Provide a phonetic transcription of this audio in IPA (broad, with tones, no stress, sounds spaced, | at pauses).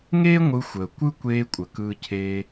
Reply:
ŋ eː˥ ŋʷ ɯ˧ xʷ əː˩ kʷ ɯ˥ kʷ eː˧ kʷʼ ə˩ k ɯː˧ cʰ eː˧